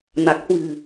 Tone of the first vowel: low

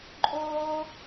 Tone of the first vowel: high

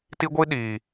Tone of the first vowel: high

